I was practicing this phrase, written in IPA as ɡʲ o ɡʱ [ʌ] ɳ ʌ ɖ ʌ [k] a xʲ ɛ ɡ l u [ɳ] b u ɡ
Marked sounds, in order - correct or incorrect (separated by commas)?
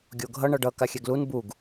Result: correct, correct, incorrect